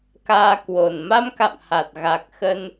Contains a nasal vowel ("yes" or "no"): no